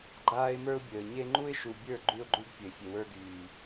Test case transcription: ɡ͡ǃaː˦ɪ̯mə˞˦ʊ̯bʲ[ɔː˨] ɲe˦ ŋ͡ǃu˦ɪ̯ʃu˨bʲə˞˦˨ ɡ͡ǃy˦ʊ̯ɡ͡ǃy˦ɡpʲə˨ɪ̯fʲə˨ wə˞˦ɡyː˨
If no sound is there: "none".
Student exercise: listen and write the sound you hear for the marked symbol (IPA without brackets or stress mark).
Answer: əː˨